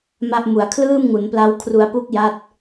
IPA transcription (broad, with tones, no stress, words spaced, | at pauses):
ma˥˩ʔ mu˩˦a̯kʰlɯː˥˩mŋu˩˦npla˦˥w kʰru˧a̯pu˥˩k̚ja˦˥t̚